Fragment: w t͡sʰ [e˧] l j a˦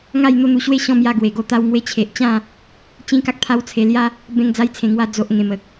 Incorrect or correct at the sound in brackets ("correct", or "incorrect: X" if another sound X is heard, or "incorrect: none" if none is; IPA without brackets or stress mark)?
correct